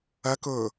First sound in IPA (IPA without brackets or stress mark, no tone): ɐ